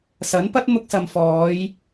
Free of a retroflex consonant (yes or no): yes